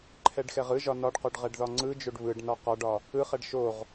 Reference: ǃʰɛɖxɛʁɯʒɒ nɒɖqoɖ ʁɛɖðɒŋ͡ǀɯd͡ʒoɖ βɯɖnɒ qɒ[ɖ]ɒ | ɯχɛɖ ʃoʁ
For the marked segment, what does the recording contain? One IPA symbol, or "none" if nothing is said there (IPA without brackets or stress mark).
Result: ɖ